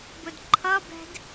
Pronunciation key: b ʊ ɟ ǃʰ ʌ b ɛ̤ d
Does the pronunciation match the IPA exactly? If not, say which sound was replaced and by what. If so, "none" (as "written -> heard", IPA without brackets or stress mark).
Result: ɟ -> d